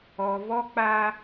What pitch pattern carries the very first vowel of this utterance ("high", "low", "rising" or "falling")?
low